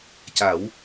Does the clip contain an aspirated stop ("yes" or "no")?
no